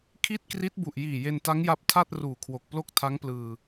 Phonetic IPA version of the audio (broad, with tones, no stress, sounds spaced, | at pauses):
kʰ i˥˩ t̚ k r i˦˥ t̚ b u˨˩ ʔ j iː˨˩ j e˧ n t a˦˥ ŋ j a˦˥ p̚ tʰ a˥˩ t̚ r uː˨˩ kʰ w o˨˩ k̚ p l o˥˩ k̚ tʰ a˦˥ ŋ p l ɯː˧